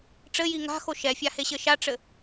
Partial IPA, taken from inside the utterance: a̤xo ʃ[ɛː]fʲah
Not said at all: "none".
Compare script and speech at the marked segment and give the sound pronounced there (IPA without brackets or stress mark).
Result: ɛ